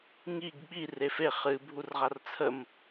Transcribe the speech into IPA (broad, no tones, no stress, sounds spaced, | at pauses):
ŋ i ɡ ɓ i r e f e χ ɨ bʱ u r ʁ a r t͡sʰ ə m